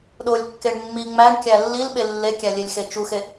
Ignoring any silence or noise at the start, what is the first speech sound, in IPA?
ɗ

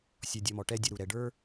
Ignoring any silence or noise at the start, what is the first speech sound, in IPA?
sʲ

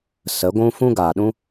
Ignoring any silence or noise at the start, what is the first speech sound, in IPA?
s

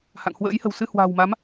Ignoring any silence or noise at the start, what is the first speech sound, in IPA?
h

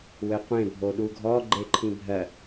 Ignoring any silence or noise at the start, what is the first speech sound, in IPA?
w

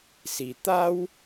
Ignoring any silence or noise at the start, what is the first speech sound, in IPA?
s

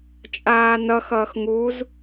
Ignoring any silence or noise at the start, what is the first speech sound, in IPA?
t͡ʃʼ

